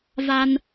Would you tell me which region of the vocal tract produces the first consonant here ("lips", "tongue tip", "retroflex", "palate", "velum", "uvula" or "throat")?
lips